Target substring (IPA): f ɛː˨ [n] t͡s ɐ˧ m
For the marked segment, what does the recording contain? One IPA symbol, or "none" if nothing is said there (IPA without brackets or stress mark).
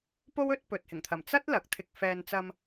n